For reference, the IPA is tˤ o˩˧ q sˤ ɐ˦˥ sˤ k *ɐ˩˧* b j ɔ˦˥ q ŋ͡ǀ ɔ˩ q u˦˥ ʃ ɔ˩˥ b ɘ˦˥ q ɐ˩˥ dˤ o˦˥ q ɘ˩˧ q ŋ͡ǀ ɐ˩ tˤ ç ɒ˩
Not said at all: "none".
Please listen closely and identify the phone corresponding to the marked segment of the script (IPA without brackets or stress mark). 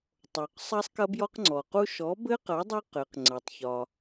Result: ɐ˦˥